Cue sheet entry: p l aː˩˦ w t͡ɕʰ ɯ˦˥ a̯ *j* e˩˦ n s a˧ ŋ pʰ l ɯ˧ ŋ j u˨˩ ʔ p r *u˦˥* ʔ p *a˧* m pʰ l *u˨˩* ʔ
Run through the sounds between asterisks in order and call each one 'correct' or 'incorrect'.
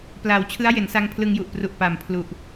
correct, incorrect, incorrect, correct

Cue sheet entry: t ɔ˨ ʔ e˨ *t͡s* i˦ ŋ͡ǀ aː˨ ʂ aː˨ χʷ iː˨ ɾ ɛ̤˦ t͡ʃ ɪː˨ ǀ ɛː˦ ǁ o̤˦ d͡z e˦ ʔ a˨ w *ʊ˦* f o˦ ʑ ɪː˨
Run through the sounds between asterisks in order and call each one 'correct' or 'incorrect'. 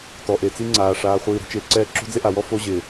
correct, incorrect

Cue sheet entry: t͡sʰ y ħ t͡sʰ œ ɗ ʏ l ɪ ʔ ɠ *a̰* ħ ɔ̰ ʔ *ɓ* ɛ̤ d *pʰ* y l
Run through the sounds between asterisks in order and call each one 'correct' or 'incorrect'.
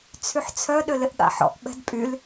correct, correct, incorrect

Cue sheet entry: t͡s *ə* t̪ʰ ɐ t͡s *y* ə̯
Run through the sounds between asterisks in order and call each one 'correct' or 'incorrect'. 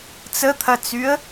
correct, correct

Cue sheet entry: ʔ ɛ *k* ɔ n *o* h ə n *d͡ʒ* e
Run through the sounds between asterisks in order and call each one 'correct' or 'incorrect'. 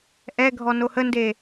incorrect, correct, incorrect

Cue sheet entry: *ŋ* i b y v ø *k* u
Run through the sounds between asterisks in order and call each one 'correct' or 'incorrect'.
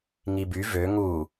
correct, incorrect

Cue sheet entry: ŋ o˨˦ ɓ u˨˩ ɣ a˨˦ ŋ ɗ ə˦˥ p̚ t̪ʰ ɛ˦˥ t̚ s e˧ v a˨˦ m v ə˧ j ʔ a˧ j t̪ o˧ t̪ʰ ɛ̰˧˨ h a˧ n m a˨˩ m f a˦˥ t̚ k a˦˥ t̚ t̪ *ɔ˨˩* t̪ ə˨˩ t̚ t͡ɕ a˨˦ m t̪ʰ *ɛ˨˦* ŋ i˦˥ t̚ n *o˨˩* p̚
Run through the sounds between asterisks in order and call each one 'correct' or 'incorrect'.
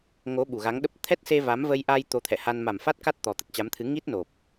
correct, incorrect, correct

